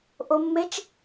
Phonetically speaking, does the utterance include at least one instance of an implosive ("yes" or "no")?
no